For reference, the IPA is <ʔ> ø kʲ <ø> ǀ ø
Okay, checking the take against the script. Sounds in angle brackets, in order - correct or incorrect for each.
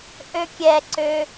correct, incorrect: ɛ

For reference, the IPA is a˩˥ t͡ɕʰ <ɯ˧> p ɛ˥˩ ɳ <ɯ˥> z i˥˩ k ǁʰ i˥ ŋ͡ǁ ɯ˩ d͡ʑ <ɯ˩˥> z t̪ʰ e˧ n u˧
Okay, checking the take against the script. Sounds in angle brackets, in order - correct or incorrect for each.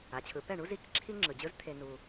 incorrect: ɯ˩˥, incorrect: u˥, incorrect: ɯ˥

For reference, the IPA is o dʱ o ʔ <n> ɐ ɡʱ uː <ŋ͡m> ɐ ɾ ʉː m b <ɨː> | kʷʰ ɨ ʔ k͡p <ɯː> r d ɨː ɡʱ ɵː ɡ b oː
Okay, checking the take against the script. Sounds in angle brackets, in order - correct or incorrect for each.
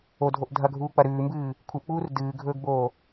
incorrect: dʱ, incorrect: k͡p, correct, incorrect: uː

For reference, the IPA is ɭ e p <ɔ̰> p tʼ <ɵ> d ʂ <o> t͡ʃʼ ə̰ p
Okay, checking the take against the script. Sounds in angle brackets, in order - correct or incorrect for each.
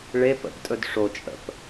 incorrect: ə̰, correct, correct

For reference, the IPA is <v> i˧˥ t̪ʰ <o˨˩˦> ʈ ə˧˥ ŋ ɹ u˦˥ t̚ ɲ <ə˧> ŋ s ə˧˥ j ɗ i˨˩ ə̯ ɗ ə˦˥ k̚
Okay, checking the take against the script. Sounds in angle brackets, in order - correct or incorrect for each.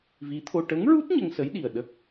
correct, incorrect: o˧, correct

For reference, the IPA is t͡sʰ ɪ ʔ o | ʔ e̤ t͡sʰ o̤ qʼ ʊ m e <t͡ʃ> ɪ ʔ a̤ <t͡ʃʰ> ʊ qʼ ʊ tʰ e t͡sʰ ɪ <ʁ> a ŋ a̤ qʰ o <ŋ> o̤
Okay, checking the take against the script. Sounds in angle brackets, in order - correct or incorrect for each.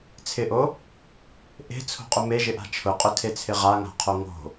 incorrect: ʒ, correct, correct, correct

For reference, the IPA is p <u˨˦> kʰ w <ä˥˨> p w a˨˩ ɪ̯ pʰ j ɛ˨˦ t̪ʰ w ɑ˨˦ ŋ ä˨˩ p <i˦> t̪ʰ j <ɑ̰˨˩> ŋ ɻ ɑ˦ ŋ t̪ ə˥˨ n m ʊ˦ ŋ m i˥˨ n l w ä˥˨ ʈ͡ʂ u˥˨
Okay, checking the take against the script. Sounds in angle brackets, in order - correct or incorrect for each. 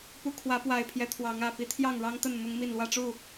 correct, incorrect: ä˨˦, correct, incorrect: ɑ˥˨

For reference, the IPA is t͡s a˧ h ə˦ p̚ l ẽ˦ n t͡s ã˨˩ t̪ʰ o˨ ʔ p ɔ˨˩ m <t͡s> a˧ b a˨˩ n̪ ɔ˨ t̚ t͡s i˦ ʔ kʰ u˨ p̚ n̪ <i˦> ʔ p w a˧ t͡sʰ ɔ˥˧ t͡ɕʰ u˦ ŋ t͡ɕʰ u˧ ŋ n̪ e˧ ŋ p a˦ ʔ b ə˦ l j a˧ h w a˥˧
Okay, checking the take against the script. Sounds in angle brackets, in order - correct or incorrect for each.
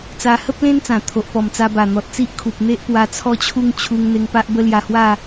correct, incorrect: e˦

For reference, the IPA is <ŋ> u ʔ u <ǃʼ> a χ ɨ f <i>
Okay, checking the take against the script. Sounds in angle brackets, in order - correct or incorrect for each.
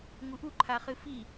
correct, incorrect: ǃʰ, correct

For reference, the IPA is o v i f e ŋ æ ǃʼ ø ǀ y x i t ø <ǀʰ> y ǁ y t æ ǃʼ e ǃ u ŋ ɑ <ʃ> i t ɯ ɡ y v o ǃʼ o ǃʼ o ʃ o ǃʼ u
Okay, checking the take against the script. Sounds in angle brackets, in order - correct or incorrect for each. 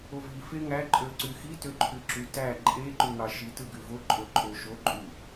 incorrect: ǃʰ, correct

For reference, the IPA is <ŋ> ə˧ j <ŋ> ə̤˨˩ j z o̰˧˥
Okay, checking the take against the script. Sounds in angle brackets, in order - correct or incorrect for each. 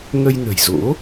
correct, incorrect: n

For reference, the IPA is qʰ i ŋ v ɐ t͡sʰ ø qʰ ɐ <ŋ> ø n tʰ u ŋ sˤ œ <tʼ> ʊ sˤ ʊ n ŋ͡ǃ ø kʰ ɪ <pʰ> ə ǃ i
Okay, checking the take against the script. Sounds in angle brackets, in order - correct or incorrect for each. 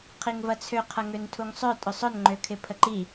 correct, correct, correct

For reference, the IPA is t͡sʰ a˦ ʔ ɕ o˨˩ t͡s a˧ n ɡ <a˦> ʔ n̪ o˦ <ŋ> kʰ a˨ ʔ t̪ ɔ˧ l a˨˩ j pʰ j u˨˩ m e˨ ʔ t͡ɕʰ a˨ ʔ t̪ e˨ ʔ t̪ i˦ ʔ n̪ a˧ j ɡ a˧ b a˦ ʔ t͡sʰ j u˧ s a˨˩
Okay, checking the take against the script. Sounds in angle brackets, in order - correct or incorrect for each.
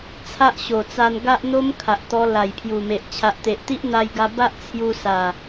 correct, incorrect: m

